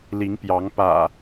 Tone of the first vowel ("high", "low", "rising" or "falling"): rising